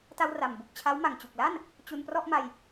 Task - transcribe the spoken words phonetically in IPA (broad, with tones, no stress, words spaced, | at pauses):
ta˧wra˨˩m bu˨˩k̚t͡ɕʰa˦˥w ma˨˩ŋt͡ɕu˨˩k̚la˥˩n | t͡ɕu˧nprɔ˥˩ʔma˧j